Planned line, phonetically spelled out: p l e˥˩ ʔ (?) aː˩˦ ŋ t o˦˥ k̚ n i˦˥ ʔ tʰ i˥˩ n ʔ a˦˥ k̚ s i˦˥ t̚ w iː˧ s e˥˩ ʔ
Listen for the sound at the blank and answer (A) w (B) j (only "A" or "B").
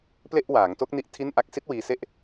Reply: A